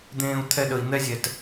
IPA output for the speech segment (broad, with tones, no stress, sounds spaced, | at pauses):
d̪ ẽː˧ u̯ t̪ʰ ɛ˧ ɗ ə˨ i̯ n̪ ɛ˦ zʲ ɛ˨ t